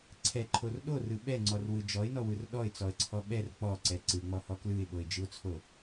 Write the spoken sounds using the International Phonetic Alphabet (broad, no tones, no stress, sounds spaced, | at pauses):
ǀʰ ɛ ǃʰ o r ɗ o r ɯ ɓ ɛ ŋ͡ǀ ɔ r w ɯ d͡ʒ ɔ ɪ̯ n ɔ w ɯ r ɗ ɔ ɪ̯ t͡s ɔ ə̯ ǀʰ ɔ ɓ ɛ r k͡p ɔ ǀ ɛ ǀ ɯ ŋ͡m ɔ h ɔ k l ɯ ɪ̯ ɓ o ɪ̯ d͡ʒ ɯ ʊ̯ t͡sʰ o